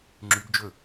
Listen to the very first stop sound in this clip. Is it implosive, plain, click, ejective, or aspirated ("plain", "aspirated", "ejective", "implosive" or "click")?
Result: click